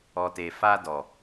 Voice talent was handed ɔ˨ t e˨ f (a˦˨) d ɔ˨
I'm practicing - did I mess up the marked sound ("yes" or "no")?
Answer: yes